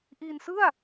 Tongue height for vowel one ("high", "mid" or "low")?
high